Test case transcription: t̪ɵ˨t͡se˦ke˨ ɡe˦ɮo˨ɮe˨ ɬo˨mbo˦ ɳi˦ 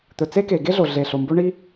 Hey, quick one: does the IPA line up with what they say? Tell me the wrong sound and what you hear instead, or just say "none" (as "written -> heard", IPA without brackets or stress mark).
none